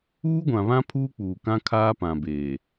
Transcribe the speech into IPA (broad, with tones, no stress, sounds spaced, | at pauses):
uː˦ ɡʷ ã˨ β ã˦ pʰ uː˦ k͡p uː˨ k ã˦ kʰ aː˦ p ã˨ b eː˨